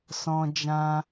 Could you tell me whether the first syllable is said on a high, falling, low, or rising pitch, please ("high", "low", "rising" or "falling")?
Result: high